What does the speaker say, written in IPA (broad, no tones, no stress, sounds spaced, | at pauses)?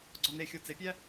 ɡ͡ǀ ɒ n e xʲ o t͡s e pʲ æ